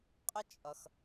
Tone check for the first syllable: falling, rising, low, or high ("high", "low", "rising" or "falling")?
high